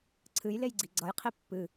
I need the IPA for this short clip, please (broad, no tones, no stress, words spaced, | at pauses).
ǀʰɨjlejɡ͡ǀi ɡ͡ǀʌjqʰi pːɨ